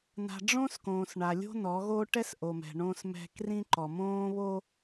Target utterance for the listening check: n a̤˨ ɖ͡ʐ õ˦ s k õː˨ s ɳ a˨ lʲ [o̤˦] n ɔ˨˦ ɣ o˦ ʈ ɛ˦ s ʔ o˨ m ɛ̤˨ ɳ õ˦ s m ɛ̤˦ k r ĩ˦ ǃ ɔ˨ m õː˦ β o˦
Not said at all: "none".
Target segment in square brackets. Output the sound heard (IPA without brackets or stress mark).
o̤˦